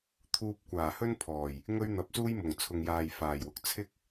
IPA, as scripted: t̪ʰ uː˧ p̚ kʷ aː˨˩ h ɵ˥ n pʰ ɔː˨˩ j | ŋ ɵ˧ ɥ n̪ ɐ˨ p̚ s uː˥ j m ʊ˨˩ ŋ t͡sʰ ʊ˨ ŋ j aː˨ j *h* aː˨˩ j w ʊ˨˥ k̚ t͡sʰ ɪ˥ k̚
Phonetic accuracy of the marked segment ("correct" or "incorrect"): incorrect